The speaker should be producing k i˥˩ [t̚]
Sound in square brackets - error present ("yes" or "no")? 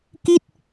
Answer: no